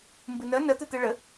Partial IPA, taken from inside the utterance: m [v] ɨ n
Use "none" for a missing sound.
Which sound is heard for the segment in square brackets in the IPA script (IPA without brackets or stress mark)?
b